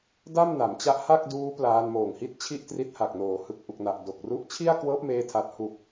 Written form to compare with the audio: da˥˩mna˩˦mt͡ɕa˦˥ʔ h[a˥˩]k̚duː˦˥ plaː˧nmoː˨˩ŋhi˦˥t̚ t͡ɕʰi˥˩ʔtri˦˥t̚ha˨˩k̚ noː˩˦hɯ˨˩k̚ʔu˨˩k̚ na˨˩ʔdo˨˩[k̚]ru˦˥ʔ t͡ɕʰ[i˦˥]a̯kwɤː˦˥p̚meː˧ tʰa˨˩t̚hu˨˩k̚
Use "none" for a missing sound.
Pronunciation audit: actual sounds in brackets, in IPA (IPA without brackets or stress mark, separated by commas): a˥˩, k̚, i˥˩